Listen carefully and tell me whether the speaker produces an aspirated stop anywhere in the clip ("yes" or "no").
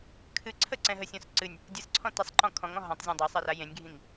yes